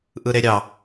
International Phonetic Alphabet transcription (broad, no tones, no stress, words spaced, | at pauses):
ʔɯɾeɾʲɑ